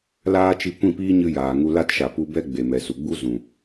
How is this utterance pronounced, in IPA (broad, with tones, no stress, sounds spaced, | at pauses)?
l aː˦ t͡ʃ i˧ kʷ ĩ˦˨ p iː˦ ɲ ɨ˧ j aː˨ ŋ u˧ l a˦ t ʃ a˨ p u˧ b ɛ˦ ɡ͡b e˨ m ɛ˨ s u˨ ɡ͡b u˦ z ũ˨